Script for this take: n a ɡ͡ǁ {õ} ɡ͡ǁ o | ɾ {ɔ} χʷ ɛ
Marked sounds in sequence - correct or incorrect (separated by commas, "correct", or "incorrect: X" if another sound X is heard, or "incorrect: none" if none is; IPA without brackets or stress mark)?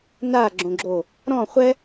correct, incorrect: ɔ̃